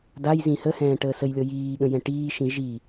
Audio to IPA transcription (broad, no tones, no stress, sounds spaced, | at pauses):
d a j z ĩ h ə h ɛ̃ː ʈ əː s ə j lʲ ɤ j iː ɠ ə̃ j ɛ̃ ʈ iː ʃ ĩ ʒ i